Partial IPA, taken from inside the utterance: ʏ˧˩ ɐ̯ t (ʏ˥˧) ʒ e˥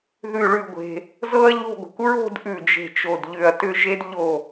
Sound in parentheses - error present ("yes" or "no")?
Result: no